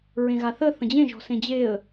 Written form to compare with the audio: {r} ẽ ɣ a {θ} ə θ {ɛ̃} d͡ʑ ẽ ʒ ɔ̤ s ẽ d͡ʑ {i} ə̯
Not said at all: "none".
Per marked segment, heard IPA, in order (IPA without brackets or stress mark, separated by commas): ɹ, θ, ə̃, e